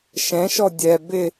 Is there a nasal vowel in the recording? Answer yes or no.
yes